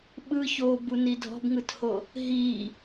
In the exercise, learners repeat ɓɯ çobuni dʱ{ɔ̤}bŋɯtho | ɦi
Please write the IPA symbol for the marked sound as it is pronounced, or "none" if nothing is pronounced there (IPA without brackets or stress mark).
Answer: ɔ̤